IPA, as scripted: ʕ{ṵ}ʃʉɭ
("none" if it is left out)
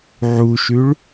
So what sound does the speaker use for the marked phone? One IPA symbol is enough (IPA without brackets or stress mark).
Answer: u